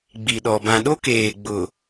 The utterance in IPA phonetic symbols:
ɡ͡bi˨ɗɔ˨ bã˨ɗo˦keː˨ ɡ͡bʊ˨

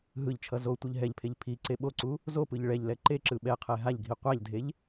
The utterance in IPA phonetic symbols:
ɦɯʎt͡ʃʰʌ zo tʷɯʎɦɛʎpʰeʎ pʰi ǀeɓoǀu | zopɯʎ ɭɛʎlɛ ǃeǁɯ ɓɛqʰɛ ɦaʎɡʱi qʷaʎdʱeʎ

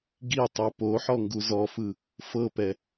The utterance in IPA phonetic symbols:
ɡitˤu poħɔ ŋɡuzɔfɯ | fɤpɛ

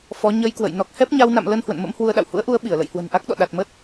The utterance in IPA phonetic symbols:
fɔ˨˦ ɲə˧jkwə̰˧˨j nɔ˨˩k̚hɛ˦˥p̚ɲa˧wna̰˧˨m lə˧n hwə̰˧˨nmə̰˧˥mhwu˧ə̯ɗa̰˧˨w hṵ˧˥ə̯ʔu˨˦ə̯ ɓi˧˩ə̯lə̰˧˨jhwə̤˨˩n ʔa˦˥k̚ɗɔ̰˧˨ ɗa˨˩t̚mə˦˥t̚

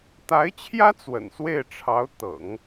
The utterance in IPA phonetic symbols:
t̪a˧˥ɪ̯t͡ɕʰjä˥ t͡swə̰˨˩nswe˥˩ɪ̯ʈ͡ʂʰɑ˧˥ʊ̯ t̪ɤ̰˨˩˦ŋ

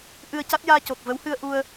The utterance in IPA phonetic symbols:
ʔɨ˧ə̯ca˦˥t̚ jaː˧co˨˩k̚ və˧˥whɨ˧ə̯ʔu˧ə̯

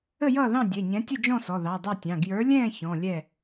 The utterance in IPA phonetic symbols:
ə˥˨jʌː˥˨ðɑ̃˥˨ dʲɛ˩˧˩ɲɛ̃˨˥tʲə˥˨d͡ʒɔ̃˥˨ sɔ˩˧˩ðɑ˩˧˩dˤɛ˥˨tʲɑ̃˩˧˩ ɡjə˞˨˥lʲɛ̃ː˥˨ çɔ̃˩˧˩ lʲɛ˥˨

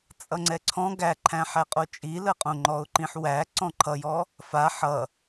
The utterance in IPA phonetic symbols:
t͡sʼʌŋ͡ǀɛǀʰɔ̃ ɡæǃʰæ̃ħæqʼo t͡ʃʼiləqʼõ ŋ͡ǃɔʊ̯ǃĩħwæ ǀɔ̃ǃʰʌjɔ | fa ħʌ

